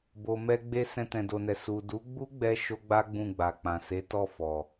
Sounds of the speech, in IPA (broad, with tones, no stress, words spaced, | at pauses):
bo˨mɛ˧ɡ͡be˧ sɛ̃˧tɛ̃˨do˨nɛ˨ su˨du˨˦ɡ͡bu˦ɡ͡bɛ˧ ʃo˦ɡ͡ba˦ ɡ͡bũ˦˨ɡ͡ba˨k͡pã˨ se˨˦tɔ˦˨ fɔ˨